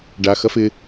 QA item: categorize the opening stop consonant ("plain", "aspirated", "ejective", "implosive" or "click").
plain